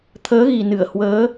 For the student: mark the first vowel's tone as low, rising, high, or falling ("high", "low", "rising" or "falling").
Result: rising